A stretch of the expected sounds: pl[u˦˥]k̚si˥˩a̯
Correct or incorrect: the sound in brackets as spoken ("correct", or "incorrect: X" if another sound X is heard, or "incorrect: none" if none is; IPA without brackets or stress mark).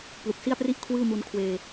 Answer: incorrect: u˨˩